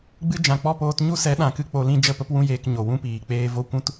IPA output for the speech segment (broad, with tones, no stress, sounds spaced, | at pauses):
ɡ͡b ɨ˦ d͡ʒ ã˨ k͡p ɔ˦˨ p oː˧ t ɲ u˦ s ɛ˨˦ ɗ ã˨ k ɨ˧ k͡p o˧ l ĩ˦ d͡ʒ ə˦˨ p ə˦ p w ũ˦ j eː˧ k ɲ o˨ w ũ˦ p iː˨ k͡p eː˧ v o˦ kʷ ũ˦ t